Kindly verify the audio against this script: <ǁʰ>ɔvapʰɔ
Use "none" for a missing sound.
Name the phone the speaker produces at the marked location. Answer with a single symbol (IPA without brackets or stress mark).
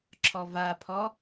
ǁʰ